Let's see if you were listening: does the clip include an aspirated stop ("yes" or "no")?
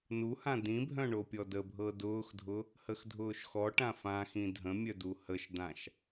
no